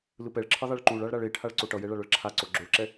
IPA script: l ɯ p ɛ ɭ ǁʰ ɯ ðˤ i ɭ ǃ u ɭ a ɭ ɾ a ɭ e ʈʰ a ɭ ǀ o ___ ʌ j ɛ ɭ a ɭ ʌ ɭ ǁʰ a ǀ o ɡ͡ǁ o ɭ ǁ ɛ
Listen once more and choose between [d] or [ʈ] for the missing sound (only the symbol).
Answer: ʈ